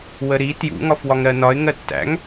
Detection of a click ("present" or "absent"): absent